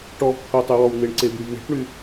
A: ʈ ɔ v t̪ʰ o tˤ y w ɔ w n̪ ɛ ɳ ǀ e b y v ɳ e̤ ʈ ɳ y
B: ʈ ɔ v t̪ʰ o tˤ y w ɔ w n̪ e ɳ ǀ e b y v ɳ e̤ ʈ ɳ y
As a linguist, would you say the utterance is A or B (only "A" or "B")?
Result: B